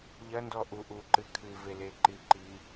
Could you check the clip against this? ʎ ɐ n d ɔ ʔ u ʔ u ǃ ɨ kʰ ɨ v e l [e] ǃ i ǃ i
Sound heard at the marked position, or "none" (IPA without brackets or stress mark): e